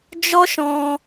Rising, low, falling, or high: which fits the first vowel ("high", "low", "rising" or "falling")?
high